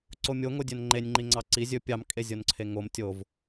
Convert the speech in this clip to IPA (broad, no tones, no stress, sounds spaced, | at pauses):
ǀ o mʲ o ŋ o dʲ ɵ n ŋ͡ǃ e nʲ ŋ͡ǃ i ŋ͡ǀ ɑ ǀ i zʲ ɵ pʲ ɑ m kʼ e zʲ o n ǀʰ e ŋ o m tʲ o v